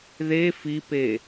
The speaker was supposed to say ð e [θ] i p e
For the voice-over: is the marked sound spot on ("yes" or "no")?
no